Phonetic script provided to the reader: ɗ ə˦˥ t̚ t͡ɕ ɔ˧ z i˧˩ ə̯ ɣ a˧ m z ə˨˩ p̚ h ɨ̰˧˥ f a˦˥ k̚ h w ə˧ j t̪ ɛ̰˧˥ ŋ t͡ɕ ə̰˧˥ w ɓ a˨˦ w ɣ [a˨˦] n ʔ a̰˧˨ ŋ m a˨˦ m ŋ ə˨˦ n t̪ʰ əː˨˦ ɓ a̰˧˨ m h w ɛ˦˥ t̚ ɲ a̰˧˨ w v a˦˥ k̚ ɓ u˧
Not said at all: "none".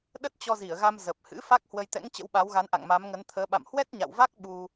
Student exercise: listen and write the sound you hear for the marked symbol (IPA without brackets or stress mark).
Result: a˨˦